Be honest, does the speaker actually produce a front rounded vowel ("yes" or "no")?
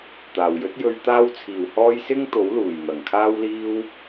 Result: no